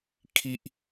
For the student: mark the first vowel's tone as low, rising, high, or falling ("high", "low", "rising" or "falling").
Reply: high